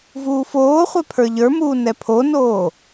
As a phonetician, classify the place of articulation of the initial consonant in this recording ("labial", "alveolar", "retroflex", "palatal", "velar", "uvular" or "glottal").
labial